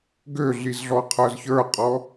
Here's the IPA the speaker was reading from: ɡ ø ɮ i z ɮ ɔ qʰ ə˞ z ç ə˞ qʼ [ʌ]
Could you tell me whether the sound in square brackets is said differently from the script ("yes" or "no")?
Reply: yes